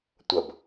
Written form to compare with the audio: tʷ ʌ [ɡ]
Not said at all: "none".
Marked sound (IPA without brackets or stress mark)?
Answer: b